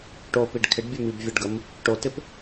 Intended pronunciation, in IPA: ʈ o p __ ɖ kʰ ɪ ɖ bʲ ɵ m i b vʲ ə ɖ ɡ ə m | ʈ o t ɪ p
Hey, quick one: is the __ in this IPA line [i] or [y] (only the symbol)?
i